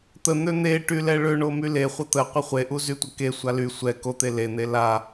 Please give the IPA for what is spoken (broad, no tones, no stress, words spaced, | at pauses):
t̪ən̪ø n̪eʈy lɛɭøɳo myleχʷə t̪əqʷə χʷeʔu zytʷəkesʷa ly sʷɛ kot̪e len̪e la